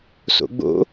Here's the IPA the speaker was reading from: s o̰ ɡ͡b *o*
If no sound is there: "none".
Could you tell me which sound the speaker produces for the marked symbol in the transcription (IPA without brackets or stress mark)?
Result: o̰